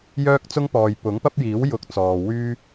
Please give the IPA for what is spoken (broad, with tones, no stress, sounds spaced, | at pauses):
j œː˥ k̚ t͡s ʊ˥ ŋ p ɔː˨ j p ʊ˨˥ ŋ p ɐ˥ p̚ j iː˨˥ w j ʊ˨˥ k̚ t͡s ɔː˨ w yː˥